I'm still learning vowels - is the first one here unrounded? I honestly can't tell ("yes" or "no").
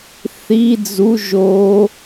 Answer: yes